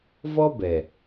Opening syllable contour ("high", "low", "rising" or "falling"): high